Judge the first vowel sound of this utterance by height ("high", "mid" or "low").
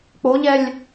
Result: mid